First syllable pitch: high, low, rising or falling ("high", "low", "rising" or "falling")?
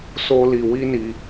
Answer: high